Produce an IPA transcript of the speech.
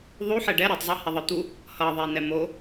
ðˤ u ħ ɛ ɖ ɛ ɾ i tˤ zˤ e h ɛ ðˤ ɯ t̪ u | h ʌ ðˤ e n ɛ m o

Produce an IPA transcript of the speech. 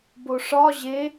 b o ʂ ɒ ʑ e

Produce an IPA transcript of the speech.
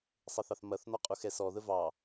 sˤ ə θ ɑ θ m ɐ θ n ɔ qʼ u x ɛ s ɔ ð ə v ɑ

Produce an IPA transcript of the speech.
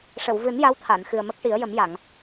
ʂ ə˨˩˨ w v ɨ˨˩˦ n j a˧˥ w t̪ʰ a˨˩˨ n x ɨ˨˩ ə̯ m ə˦˥ k̚ ʈ i˨˩˦ ə̯ j ə˨˩˦ m j a˨˩˨ ŋ

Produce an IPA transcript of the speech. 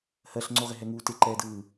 h ɜ ɬ ŋ͡ǀ o ʁ ɪ ɦ ɛ ŋ uː t ɪ ǃ ɛː d ɯː

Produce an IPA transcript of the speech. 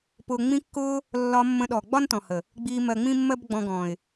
p ʊ˨ ŋ͡m ĩ˧ kː ʊː˧ | lː ɒ˧ mː ə̃˧ ɗ ɔ˨ ɡ͡b ɒ˦ n t ɔ̃˨ h ə˨ | ɡ͡b iː˧ m ɜ˧ ŋ͡m ĩ˦ mː ɜ˦ b ɡ͡b ɔ̃˧ ɡ ɔ̃˨ ɪ̯

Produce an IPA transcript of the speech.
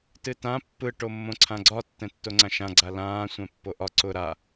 t ɨ t ã pː ɯ ʈ o mː õ ǀʰ ã ɡ͡ǀ ɒ tː ɛ̃ tː o ŋ͡ǀ ã ʃ ã ɡ͡ǀ a l ãː sʷ ɛ̃ pː o ʔ ɒ ǀ ʊ ɾ a

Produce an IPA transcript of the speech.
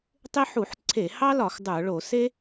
tˤ ɪ˥ ħ u˧˩˧ ħ ǀʰ e˧˩˧ h ɑ˥ l ɒ˧˩˧ x dˤ ə˞˧˩˧ ɭ o˧˩˧ s e˥

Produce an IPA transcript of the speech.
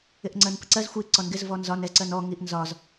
ɪ ʔ ŋ͡ǀ ɜ n p ə ǀ ɜ z xʷ i ǀ ɔ n ɡ ɪ z v ɔ n z ɒ n ɛ z ǀ ɜ n ɔ ŋ i ʔ n z ɒ z

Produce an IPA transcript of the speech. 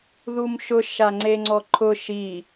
ð u m ʃ ʊ ʃ a ŋ͡ǀ e ŋ͡ǀ ɔ ǃʰ ʊ ʃ i

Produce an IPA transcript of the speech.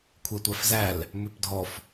kʷʰ ɛ tʷ æ f z æ l | m ʉ p dʱ ɔ f

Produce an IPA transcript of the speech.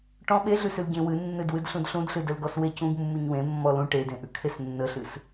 ʈ ɔ̃ ɓ e ɮ ʉ s ʉ l ɟ ẽ w ɨ nː ɨ d w ɨ d ɬ ũ d ɬ ũ d ɬ ɨ d ə l ɡ ɔ s w e c ũ ɡ mː u ɲ w ẽ mː ɔ l ũ ʈ e d ẽ ʔ ʉ kʰ e s nː ə ɬ ɨ s

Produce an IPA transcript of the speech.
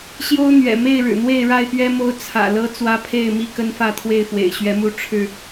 ɕ j o˦ ʊ̯ n̪ ɥ ɛ̰˨˩ m e˥˨ ɪ̯ ɻ ɻ̩˨˩ n̪ w e˥˨ ɪ̯ ɻ a˥˨ ɪ̯ p ɥ ɛ˦ m o˦ ʊ̯ t͡sʰ ä̰˨˩ l ɤ˦ t͡s w ä˦ pʰ e˥˨ ɪ̯ m i˥˨ k ə˦ n f ä˥˨ t̪ʰ w e˥˨ ɪ̯ f w ḛ˨˩ ɪ̯ ɕ ɥ ɛ˨˦ m u˨˦ ʈ͡ʂʰ ɻ̩˥˨

